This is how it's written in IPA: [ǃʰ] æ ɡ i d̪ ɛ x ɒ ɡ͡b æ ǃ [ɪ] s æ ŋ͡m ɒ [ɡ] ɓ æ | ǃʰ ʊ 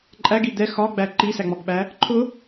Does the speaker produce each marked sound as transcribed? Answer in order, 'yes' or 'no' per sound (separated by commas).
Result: no, no, yes